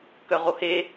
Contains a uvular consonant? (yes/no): yes